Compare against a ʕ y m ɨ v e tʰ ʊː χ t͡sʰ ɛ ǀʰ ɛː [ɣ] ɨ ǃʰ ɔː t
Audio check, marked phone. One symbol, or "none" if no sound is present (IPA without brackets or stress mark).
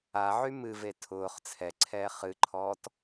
χ